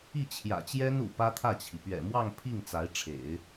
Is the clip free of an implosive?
yes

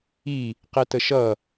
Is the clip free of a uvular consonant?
no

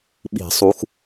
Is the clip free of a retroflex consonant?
yes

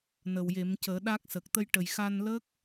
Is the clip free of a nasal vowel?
yes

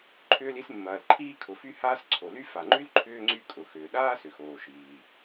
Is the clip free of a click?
no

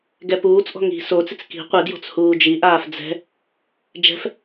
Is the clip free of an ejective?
yes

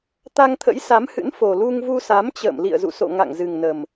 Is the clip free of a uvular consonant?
yes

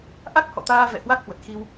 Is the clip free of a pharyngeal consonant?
yes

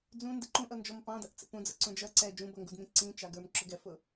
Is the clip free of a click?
no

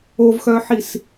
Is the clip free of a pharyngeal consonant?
no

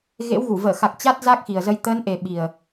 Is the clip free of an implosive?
no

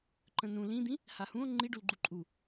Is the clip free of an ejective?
no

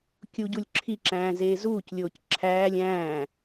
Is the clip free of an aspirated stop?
no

